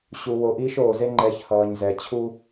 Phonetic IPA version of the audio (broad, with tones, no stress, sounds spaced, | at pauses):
ɕ u˨ w o˨ ʔ iː˦ ʃ oː˨ z e˦ ŋ͡ǃ ɛ˨˦ ç h ʌː˨ ɲ z ɛ˨ t͡ɕʰ u˦